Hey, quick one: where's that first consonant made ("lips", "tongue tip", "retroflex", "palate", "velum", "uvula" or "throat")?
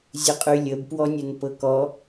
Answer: tongue tip